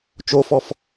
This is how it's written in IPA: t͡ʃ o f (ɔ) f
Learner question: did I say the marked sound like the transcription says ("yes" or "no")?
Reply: yes